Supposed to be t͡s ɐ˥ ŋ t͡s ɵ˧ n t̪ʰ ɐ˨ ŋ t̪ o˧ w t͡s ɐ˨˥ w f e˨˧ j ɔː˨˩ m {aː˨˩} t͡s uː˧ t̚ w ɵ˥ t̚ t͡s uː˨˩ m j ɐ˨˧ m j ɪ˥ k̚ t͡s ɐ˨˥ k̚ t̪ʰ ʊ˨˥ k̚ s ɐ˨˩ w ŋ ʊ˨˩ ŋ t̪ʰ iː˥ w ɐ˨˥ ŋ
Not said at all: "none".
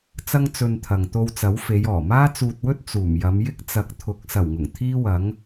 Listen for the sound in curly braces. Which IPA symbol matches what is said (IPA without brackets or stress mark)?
aː˥